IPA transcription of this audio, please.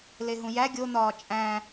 leɦũjæ ɡʲon̪ɒː t͡ʃʼæ̃

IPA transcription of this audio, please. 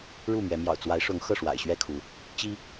ɻu˥˨mɥɛ˨˦ mjɑ̰˨˩ʊ̯t͡swa˨˦ɪ̯ʂʊ˨˦ŋ xɤ˥˨ʂwa̰˨˩ɪ̯ɕɥɛ˥˨kʰu˨˦ | t͡ɕi˦

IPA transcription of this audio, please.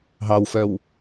ɦɑwfœw

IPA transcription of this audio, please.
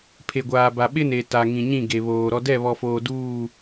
pʰe˨ɡʷaː˨ ba˨ɓɪ˦ne˨ ta˨ŋĩ˨ ɲĩ˦˨ɡe˨βoː˨ ɾɔ˨dɛ˦˨βɔ˨foː˨ duː˦˨

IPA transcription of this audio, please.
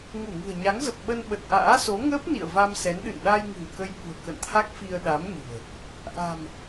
ŋu˧˩ŋɨ̤˨˩ə̯ɲa˨˦ŋzə˨˩p̚ ɓə˧nɓə˨˩t̚ʔa̰ː˧˥so˨˦ ŋəː˦˥p̚ nḭ˧˨ə̯va˧m sɛ˨˦nɗɨ̰˧˨n ɗaː˧jŋɨ̤˨˩w kə˧jɓṳ˨˩ə̯ kə̰˧˨nt̪ʰa˦˥k̚fi˧ə̯ɗa˨˦m ɲɨ̤˨˩ə̯ | ʔa̤˨˩m

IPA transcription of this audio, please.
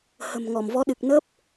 hə̤˨˩m ŋɔ˧˩mvɔ˨˦ɗɨ˨˩k̚ nə˦˥p̚

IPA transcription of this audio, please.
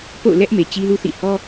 po̰˦˨ʊ̯lɛ˦ʔ me˨t͡ɕi˦lu˦θḭ˦˨ hɔ˦

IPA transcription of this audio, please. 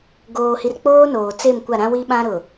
ɡoː˨hi˨rk͡poː˦ noː˨ t͡se˦˨mkʷa˦˨ɾã˦wi˦ ɓã˦ɾʊ˨

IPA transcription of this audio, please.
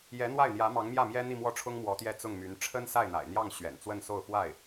jɛ˧˥n̪wa˥˩ɪ̯n̪jä˧˥ mɑ˧˥ŋmjä˥˩mjɛ˥ n̪i˥˧mwɔ˥˩ʈ͡ʂʰʊ˥ŋ mwɔ˧˥t̪jɛ˥˧t͡sʊ˥˩ŋmy˧˥n ʈ͡ʂʰə˥nsa˥˩ɪ̯n̪a̰˨˩ɪ̯n̪jɑ˥˩ŋ ɕɥɛ̰˨˩nt͡swə˥˧nso˥˧ʊ̯ fwa˥˩ɪ̯

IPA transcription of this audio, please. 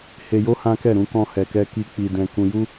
he˧jo˦ hã˦kɛ˦˨ ɾũ˧ kɔ̃˧hɛ˨kɛ˧ ki˧ k͡pi˨dɛ̃˨ kũ˨ju˧

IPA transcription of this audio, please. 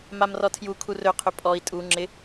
mamrɔtʰju kʰurɵqʰɵ pʼɔi̯ tʼu ŋ͡ǁɪ

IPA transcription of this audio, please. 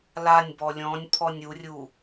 lanʲbɔ lʲɔ̃nʲ pʰɔnʲurʲu

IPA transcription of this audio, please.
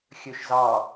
xʲøʃzɑ

